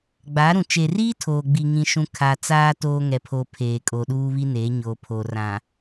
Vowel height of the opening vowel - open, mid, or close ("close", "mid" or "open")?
open